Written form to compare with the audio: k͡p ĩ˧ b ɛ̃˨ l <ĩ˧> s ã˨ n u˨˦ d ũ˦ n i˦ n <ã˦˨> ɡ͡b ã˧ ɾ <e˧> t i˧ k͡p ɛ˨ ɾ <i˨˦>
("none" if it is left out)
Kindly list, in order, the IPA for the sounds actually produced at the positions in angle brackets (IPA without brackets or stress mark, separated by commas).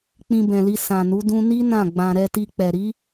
i˧, ã˦˨, ɛ˧, i˨˦